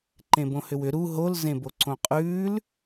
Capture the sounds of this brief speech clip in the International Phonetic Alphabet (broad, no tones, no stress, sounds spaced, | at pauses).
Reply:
ǃ ẽ b õ h ʏ w ʏ ɾ u ɦ o l z ẽ b o ǀ õ qʼ ʉː l